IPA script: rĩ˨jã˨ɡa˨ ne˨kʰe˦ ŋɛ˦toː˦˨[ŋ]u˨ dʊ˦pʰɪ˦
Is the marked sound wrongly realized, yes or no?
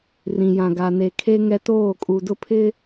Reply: yes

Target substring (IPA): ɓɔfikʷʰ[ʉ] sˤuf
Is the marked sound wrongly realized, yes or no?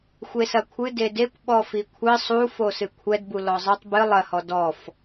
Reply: yes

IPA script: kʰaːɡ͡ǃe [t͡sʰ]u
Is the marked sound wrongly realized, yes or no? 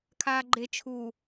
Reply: yes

